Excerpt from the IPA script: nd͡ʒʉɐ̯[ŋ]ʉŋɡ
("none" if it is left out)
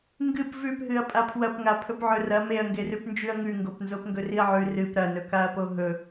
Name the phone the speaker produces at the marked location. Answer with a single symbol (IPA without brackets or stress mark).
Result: ŋ